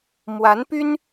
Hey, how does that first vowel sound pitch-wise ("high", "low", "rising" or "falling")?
rising